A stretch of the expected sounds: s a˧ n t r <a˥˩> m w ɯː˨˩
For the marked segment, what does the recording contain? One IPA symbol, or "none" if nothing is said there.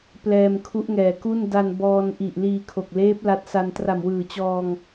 a˨˩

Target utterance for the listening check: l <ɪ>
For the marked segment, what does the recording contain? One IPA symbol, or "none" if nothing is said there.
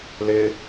ɪ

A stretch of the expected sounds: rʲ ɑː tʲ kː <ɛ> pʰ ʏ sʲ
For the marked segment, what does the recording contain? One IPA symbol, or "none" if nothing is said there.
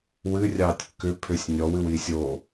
ʏ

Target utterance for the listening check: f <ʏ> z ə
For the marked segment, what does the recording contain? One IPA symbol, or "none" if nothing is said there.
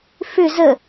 ʏ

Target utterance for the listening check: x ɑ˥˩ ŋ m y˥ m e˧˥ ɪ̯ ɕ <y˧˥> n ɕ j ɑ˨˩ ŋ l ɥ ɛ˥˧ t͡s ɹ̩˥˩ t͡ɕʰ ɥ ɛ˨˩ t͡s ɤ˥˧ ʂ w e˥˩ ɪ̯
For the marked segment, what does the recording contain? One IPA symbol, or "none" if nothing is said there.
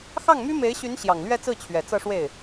y˧˥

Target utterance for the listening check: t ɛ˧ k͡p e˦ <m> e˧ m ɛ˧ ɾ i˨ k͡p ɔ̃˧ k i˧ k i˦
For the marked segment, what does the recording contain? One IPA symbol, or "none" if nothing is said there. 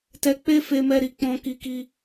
f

